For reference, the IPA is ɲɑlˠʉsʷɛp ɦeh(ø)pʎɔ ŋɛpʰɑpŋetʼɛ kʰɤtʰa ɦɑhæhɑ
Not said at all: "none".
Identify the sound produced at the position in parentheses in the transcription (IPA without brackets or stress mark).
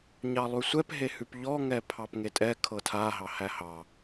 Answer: ʉ